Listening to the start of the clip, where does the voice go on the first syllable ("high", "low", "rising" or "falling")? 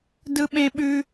low